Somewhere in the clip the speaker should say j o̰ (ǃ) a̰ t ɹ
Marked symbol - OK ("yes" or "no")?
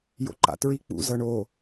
yes